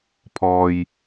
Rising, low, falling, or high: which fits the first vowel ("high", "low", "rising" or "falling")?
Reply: low